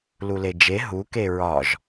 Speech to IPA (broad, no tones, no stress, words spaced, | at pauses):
luled͡ʒe ɦu keɹɒʒ